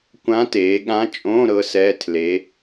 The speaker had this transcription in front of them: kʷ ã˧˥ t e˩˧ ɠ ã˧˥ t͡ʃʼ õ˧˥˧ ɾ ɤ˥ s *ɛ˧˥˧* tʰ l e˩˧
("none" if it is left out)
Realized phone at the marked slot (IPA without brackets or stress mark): ɛ˧˥˧